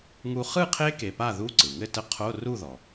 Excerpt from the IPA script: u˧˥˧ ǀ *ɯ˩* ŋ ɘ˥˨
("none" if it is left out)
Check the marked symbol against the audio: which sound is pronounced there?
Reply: ɯ˩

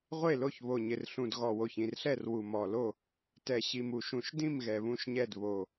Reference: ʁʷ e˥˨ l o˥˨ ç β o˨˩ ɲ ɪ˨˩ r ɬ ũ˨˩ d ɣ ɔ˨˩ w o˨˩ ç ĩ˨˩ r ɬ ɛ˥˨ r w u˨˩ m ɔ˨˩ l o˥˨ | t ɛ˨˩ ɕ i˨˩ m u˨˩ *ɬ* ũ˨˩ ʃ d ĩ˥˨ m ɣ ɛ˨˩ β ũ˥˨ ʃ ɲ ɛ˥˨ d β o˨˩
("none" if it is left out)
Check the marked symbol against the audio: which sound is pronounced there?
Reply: ʃ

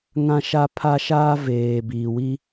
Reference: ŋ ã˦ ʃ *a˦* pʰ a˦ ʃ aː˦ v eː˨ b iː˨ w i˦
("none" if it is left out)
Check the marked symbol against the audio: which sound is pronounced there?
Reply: a˦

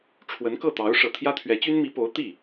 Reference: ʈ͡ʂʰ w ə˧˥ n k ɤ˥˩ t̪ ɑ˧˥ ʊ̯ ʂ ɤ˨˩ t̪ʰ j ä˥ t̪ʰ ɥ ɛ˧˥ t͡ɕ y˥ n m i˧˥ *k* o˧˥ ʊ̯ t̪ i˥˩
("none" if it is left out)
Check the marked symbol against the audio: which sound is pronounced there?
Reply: p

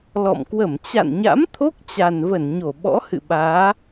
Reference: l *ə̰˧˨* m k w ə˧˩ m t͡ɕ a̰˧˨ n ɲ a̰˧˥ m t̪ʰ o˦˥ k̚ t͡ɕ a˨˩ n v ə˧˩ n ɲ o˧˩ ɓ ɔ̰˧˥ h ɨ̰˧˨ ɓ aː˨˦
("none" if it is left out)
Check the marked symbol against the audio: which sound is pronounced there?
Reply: ɔ̰˧˨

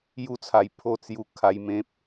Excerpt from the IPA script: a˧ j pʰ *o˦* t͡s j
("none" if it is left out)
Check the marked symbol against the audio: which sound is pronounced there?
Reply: o˥˧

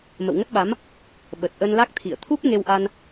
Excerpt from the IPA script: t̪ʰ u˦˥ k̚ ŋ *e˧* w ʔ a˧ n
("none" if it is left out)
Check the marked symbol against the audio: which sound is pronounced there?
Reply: e˧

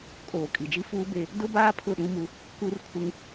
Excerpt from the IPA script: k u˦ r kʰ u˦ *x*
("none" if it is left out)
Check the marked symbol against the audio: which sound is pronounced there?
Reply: ŋ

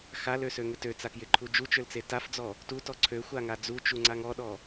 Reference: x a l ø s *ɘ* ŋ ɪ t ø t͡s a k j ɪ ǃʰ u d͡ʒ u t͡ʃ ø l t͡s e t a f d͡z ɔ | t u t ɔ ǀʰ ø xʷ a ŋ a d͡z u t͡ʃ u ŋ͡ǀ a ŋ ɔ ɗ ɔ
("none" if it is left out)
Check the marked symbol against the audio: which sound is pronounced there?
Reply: ø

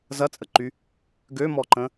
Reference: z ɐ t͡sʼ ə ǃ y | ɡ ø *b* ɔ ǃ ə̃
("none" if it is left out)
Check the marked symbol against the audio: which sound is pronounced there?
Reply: m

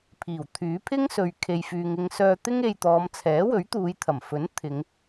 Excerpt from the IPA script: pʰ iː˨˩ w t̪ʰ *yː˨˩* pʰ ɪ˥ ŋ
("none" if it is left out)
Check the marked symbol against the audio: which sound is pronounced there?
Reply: yː˨˥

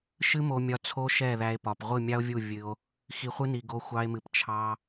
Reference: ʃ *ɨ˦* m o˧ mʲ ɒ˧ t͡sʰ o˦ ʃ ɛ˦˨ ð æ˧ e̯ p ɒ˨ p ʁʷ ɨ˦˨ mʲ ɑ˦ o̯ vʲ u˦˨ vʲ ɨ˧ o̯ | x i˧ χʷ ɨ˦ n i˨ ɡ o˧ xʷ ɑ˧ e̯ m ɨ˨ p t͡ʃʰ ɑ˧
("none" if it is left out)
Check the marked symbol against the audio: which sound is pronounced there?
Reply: ɨ˦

